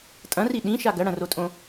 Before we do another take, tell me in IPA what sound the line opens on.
tʼ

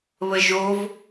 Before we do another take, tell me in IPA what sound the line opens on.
β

